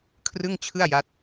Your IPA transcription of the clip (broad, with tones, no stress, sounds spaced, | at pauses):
kʰ r ɯ˥˩ ŋ t͡ɕʰ ɯ˥˩ a̯ j a˦˥ t̚